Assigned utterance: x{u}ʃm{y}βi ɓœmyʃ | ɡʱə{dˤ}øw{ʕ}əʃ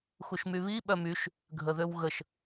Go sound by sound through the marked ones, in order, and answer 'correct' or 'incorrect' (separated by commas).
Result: correct, correct, incorrect, incorrect